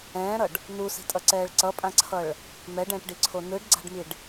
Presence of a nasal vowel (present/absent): present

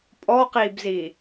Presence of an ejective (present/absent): present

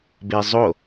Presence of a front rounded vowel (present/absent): absent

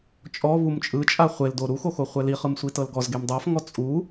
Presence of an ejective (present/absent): present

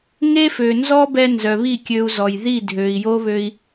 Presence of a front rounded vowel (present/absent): present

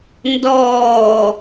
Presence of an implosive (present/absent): absent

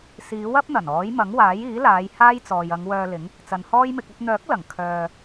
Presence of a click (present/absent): absent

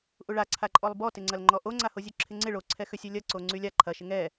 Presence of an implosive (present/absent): absent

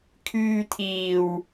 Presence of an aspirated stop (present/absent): present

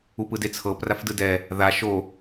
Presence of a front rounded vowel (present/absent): absent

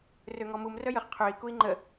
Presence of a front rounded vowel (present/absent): present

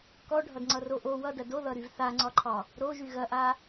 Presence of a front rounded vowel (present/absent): present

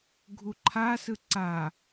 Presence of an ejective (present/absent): absent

